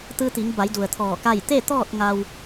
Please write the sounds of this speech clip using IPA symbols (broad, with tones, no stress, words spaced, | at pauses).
t̪ɯː˧t̪i˩˧ŋba˩˧jdu˩ə̯ t̪ʰɔː˧˩ka˥˨j t̪e˥˨t̪ɔː˥˨t̚ ŋa˧w